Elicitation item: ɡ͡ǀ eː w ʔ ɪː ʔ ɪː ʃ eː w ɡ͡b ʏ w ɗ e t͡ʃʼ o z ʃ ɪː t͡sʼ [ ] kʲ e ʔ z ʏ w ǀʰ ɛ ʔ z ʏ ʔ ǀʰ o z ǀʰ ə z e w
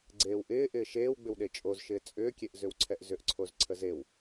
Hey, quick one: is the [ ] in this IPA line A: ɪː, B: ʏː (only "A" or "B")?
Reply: B